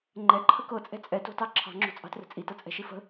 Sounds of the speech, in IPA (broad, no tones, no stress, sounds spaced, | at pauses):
ŋ͡ǃ ɛ ǃʰ ə k ɤ t͡sʼ ɛ̤ t͡sʼ ɛ t o̤ t ɑ ǁʰ ɑ̤ ŋ͡ǁ o̤ t͡sʼ ɑ̤ t r ə̤ t͡sʼ i t ɤ t͡sʼ ɛ̤ ʃ i f ə̤